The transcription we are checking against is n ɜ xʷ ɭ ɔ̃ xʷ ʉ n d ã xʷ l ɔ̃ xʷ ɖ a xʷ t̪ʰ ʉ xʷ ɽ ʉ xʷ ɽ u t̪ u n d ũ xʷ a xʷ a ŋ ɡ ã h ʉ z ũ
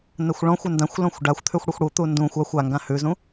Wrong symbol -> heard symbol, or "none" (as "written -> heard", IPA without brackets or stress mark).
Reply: none